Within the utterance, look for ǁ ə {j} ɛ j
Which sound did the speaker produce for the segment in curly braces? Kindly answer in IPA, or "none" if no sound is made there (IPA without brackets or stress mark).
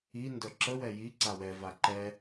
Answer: w